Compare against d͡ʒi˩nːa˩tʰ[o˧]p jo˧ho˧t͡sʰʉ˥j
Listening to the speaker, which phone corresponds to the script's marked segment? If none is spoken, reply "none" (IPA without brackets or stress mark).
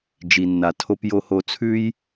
o˧